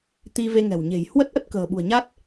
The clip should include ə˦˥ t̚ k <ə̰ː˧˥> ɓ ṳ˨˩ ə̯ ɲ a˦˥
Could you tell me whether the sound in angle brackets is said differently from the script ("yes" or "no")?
yes